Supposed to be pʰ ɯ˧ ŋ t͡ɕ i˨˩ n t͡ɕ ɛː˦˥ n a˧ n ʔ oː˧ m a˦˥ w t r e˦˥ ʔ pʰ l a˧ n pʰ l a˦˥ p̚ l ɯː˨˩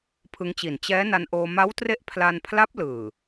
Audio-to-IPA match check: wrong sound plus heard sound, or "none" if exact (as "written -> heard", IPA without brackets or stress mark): none